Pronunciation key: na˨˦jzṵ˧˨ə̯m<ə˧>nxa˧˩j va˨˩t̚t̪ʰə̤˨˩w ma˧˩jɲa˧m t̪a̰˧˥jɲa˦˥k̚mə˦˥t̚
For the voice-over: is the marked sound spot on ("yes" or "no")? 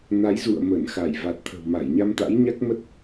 no